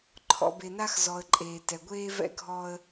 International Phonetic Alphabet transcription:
ǃʰ ɔ̰˨ b e˨ n a˦ x z ɔ˨ ə̯ ǃʼ eː˨ t ɛ˨ ɡʷ eː˦ v ɛ̰˦ ɡʱ ɔ˦ ə̯

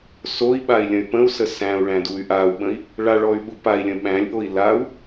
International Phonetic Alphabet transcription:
s o i̯ ɓ a i̯ lʲ ə̃ y̯ p ə̃ u̯ s ə s æ̃ u̯ ɭ æ̃ d u y̯ ʔ a u̯ ɓ ə̃ i̯ | ɭ a ɭ ɔ y̯ ɓ u p a i̯ lʲ ə̃ ɓ æ̃ lʲ ʔ o i̯ l a u̯

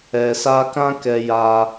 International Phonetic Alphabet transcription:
ɛ˨ s a˧ k ã˦ k ɛ˧ j a˧

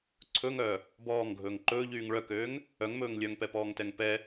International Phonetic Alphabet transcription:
ǀʰ ɵ ŋ œː | b ɔː ŋ ɡʱ ɵː ŋ ǃ ɵː ʎ yː ŋ ɭ œ k øː ŋ | œ ŋ m ɵː ŋ lʲ œ ŋ p ɛ p ɔː ŋ t ɛ ŋ p ɛ

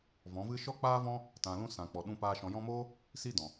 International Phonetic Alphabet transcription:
v ɔ̃˨˦ v ɨ˦ ʃ ɔ˦ k͡p aː˦ v ɔ̃˦ | t ã˨ l ũ˧ s ã˨ k͡p ɔ˨ ɗ ũ˧ p aː˧ ʃ ɔ̃˨ j ɔ̃˧ m oː˦ | s i˦ d ɔ̃˨

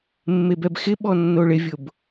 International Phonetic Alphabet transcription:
mː e b ɛ b x ɪ ɓ ɔ nː o ɭ ɪ vʲ ʊ b

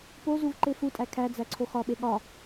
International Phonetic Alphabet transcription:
p o z u v ǃ e f u tʼ æ kʰ æ d͡z æ ǀʰ o x ɒ ɓ e ɠ ɒ

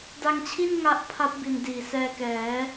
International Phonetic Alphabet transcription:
d a˧ ŋ t͡ɕʰ i˥˩ n ŋ a˦˥ ʔ pʰ a˦˥ p̚ b i˨˩ n d iː˨˩ s ɛː˧ k ɛː˩˦

